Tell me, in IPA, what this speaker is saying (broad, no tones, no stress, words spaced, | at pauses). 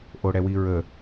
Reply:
ʔoɽɛwiɹə